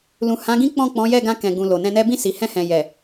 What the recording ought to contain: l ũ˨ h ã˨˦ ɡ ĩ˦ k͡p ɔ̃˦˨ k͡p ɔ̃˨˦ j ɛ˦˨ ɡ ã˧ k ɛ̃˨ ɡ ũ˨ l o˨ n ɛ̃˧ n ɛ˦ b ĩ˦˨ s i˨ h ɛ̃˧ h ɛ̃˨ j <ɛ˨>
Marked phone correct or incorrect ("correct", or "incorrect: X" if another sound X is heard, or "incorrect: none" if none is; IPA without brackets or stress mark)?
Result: correct